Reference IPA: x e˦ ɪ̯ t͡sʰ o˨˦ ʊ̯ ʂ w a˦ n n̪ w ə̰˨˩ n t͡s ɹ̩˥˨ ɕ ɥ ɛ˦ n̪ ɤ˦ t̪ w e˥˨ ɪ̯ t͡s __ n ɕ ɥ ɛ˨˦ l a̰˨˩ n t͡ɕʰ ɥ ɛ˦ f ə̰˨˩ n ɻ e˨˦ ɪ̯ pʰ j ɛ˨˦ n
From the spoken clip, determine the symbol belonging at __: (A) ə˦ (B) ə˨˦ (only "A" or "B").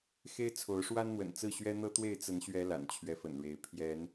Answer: B